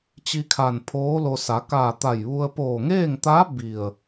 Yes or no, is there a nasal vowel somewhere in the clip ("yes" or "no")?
no